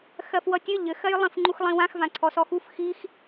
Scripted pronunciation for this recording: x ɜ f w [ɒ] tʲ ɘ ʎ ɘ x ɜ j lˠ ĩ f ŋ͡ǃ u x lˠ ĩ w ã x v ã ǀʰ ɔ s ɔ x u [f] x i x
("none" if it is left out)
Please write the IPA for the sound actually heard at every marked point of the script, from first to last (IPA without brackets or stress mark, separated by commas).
ʌ, f